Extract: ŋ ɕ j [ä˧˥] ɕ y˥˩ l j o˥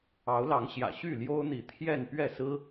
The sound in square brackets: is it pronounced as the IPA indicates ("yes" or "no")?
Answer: no